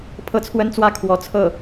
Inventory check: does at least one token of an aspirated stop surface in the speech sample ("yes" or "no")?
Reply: yes